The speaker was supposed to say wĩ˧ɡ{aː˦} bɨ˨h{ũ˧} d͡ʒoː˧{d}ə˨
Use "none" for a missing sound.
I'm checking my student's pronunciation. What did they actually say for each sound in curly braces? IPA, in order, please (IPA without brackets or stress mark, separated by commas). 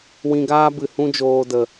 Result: aː˦, ũ˧, d